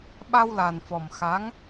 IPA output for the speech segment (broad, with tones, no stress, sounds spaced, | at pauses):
ɓ a˧ w l a˨˩ n f ɔ˨˩ m x a˧˥ ŋ